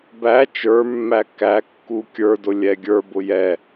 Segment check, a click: absent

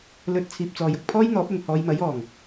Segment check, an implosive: absent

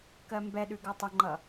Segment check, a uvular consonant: absent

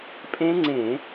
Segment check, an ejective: present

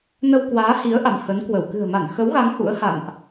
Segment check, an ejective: absent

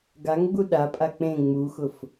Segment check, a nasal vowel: present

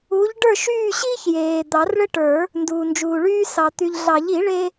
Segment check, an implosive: absent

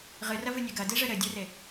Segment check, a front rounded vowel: absent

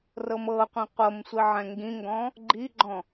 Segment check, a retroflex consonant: absent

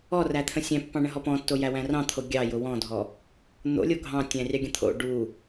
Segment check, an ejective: absent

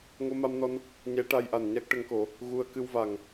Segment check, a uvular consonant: absent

